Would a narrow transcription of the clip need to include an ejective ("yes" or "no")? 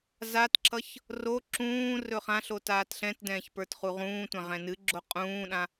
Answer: yes